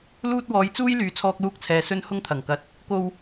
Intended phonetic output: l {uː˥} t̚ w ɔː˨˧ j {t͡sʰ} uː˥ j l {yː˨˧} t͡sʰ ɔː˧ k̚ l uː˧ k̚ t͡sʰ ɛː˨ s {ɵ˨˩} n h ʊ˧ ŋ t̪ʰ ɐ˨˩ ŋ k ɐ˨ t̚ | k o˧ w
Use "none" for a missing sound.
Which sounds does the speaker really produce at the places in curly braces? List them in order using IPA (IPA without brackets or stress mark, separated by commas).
uː˧, t͡s, yː˨˧, ɵ˧